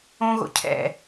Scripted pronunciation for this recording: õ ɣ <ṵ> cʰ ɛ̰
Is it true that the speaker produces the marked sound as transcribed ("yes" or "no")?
no